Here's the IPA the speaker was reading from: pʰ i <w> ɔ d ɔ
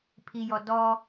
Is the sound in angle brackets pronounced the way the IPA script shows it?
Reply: no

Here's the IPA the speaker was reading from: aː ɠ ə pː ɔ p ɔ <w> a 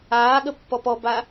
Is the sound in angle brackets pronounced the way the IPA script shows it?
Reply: no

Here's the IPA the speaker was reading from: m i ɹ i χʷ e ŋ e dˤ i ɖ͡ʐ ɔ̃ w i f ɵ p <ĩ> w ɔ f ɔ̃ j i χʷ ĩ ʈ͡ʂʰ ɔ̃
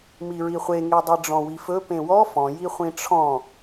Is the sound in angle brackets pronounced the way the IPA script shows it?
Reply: no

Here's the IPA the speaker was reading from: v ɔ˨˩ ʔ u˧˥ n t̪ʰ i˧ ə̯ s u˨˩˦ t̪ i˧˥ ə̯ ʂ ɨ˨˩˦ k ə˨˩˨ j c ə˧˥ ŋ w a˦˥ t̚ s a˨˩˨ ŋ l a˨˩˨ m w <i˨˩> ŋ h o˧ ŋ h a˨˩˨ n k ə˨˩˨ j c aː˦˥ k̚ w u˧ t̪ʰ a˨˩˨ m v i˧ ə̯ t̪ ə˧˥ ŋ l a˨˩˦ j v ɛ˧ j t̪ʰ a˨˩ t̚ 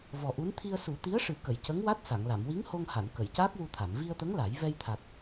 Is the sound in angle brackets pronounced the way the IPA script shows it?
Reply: no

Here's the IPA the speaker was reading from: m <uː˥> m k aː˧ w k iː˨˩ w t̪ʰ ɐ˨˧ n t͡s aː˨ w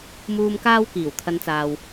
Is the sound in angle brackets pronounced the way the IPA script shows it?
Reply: no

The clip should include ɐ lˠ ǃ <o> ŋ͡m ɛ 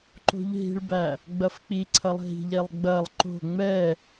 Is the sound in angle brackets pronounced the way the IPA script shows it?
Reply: no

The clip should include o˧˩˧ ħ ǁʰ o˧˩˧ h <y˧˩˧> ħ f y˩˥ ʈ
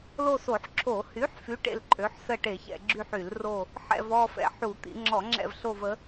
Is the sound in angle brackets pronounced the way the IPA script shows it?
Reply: no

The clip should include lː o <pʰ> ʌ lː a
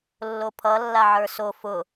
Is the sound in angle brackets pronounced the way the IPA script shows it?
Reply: yes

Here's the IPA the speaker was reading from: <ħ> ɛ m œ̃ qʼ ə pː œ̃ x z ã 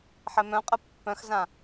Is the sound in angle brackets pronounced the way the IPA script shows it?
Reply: yes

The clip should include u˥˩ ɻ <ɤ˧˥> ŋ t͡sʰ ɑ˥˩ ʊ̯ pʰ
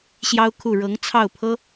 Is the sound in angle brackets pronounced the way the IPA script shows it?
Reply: yes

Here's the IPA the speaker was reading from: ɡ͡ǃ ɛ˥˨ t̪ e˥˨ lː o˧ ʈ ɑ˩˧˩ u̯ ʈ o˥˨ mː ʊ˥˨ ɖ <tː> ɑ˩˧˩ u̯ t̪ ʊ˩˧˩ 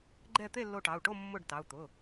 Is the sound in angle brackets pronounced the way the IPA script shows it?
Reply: no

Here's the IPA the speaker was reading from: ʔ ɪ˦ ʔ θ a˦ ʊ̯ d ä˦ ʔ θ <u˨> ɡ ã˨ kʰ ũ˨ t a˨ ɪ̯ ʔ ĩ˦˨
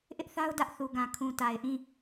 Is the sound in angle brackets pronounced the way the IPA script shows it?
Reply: yes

